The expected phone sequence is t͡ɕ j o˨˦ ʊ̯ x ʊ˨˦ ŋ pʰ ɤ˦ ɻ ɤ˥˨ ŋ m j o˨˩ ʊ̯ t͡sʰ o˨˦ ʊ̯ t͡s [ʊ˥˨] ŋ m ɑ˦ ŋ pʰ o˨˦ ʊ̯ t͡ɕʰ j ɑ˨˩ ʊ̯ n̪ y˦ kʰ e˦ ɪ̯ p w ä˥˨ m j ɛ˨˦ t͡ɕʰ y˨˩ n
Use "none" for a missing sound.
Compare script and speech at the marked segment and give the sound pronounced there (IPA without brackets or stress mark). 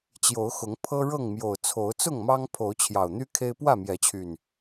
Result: ʊ˥˨